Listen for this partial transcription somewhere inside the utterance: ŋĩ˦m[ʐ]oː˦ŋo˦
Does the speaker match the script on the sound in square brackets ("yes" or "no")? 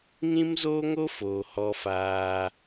no